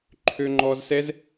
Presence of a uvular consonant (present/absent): absent